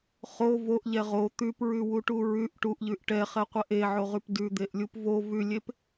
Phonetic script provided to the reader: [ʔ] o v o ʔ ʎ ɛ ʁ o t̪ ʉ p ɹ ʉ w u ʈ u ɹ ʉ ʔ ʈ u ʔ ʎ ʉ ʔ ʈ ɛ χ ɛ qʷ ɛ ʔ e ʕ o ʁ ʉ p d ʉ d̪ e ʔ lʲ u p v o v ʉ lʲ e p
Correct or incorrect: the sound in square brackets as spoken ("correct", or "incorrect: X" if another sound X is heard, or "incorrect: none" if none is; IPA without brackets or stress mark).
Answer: incorrect: χ